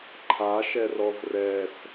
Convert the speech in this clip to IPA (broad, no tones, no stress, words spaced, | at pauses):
ǃʰaʃɛrɔv rɛs